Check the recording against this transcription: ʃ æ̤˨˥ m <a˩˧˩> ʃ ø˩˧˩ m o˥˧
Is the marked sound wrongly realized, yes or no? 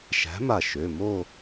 yes